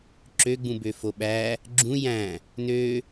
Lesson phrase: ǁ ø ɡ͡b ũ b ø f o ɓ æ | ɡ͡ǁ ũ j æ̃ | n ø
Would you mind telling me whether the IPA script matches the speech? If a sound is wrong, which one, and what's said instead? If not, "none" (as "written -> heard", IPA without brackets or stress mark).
none